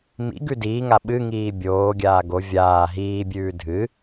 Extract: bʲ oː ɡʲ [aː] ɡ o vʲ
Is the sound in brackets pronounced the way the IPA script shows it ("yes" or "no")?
yes